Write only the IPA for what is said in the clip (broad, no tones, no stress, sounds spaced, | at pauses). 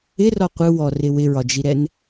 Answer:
ɪ r ɔ qʷ ɯ w ɔ r ɪ w ɪ ɹ ɒ d͡ʒ i ɾ ɛ n